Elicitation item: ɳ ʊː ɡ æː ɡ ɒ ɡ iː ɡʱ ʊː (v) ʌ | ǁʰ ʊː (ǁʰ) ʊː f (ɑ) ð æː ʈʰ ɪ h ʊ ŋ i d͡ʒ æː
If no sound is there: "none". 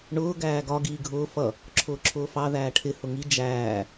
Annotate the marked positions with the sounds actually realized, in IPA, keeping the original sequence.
f, ǁʰ, ɑ

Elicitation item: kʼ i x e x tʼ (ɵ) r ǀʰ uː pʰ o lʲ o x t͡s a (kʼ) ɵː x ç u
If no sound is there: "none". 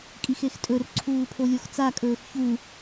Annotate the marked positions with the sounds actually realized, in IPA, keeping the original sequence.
ɵ, kʼ

